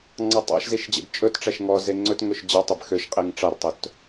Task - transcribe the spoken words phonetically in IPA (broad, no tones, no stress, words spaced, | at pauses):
ŋ͡ǀɑtˤɑ̰ʃziʃ d͡ʑḛbt͡ʃʼɵtʈ͡ʂæʃ ŋɔ zeŋ͡ǀɵtŋɵʃ d͡ʑɑtˤeb xøʃqʼiŋ ʈ͡ʂɑrtˤɵt